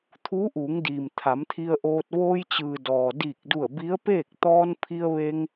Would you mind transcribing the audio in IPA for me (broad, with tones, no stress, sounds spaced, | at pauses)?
t̪ʰ uː˧˥ ʔ uː˩˧ ŋ d iː˩ m t̪ʰ a˩˧ m t̪ʰ i˧ ə̯ ʔ oː˧ t̚ ʋ oː˧ j t͡ɕ ɯː˩ d ɔː˩ d iː˧˩ k̚ d u˧˩ ə̯ b i˧˥ ə̯ p eː˥˨ k̚ t̪ ɔː˧ n pʰ i˧ ə̯ ʋ e˧ ŋ